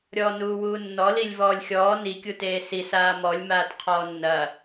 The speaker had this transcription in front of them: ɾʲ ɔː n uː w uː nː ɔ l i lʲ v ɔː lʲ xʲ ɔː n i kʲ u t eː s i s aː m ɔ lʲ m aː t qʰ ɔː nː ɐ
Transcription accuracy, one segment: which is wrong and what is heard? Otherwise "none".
none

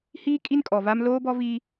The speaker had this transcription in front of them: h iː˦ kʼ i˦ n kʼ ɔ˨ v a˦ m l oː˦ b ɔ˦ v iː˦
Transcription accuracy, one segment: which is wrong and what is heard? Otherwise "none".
none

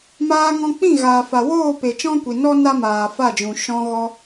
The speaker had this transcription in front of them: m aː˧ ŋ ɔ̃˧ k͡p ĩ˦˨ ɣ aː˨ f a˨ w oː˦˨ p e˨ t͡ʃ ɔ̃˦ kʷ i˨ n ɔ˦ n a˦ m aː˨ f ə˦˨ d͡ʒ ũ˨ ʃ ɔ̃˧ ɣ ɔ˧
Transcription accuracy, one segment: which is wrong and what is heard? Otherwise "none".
ə˦˨ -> a˦˨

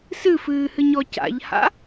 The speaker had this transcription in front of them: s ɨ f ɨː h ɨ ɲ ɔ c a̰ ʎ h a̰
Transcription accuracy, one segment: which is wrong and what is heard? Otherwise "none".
none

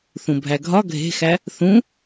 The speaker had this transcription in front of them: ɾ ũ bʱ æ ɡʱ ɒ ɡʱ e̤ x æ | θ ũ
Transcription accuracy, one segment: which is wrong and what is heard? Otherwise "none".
ɾ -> θ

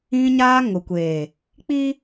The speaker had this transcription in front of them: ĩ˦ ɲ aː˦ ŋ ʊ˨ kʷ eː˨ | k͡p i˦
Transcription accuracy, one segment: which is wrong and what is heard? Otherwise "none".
none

